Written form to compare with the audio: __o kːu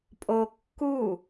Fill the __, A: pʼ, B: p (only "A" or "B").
A